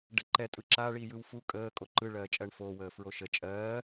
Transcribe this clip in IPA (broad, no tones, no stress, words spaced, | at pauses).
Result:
ɖəǃɛ tʼɯǁa ɭiːjɯwfu kʼəː kʼoǃɯ ɭɜːt͡ʃʼɜɳfoː wəːfɹoʃə t͡ʃʼɜː